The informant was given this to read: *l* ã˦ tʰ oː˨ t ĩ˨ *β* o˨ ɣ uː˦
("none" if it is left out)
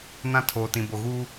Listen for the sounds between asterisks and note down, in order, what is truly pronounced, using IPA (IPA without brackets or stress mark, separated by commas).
n, b